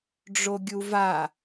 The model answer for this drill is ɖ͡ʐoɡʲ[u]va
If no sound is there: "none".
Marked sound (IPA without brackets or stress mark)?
u